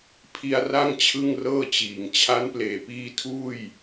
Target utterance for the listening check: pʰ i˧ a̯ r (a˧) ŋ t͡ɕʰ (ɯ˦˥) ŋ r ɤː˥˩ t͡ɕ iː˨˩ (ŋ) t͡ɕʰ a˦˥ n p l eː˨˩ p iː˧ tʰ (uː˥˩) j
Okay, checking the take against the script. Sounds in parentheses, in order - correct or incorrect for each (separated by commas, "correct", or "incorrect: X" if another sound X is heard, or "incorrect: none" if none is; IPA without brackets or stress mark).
incorrect: a˥˩, incorrect: ɯ˥˩, correct, correct